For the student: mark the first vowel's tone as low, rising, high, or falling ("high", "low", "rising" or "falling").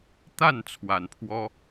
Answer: falling